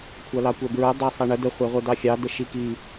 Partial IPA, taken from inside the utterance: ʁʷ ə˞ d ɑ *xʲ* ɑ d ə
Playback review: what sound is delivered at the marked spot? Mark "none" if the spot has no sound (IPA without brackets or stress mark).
xʲ